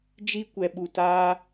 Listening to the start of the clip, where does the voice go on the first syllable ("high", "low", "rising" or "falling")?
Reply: high